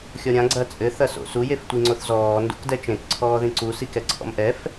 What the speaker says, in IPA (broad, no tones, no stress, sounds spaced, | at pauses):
xʲ ɔ ɾʲ ã ɡ͡ǀ ɐ t͡sʼ ɘ θ ɐ s o̰ s u j e f tʷ i ŋ͡ǀ o θ z ɔː n d ṵ k d ɛ t͡ʃ ẽ k ǀʰ ɔː ð ĩ ǀ u s i k ɛ ǀʰ ɔ̰ m ʔ ɛ f